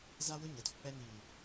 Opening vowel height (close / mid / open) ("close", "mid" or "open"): open